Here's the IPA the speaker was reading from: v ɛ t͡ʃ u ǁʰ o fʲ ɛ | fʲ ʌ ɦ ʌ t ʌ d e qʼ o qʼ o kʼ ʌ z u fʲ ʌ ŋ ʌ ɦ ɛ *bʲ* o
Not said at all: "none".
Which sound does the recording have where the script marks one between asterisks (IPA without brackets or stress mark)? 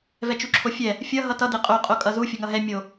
mʲ